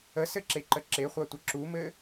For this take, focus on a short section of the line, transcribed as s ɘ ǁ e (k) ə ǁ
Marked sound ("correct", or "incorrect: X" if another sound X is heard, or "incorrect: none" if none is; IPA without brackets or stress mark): incorrect: ǃ